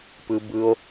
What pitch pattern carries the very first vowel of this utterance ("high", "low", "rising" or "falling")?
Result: high